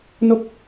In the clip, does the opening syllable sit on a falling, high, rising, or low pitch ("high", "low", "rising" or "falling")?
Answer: falling